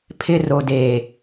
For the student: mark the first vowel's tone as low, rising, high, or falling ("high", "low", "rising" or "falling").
high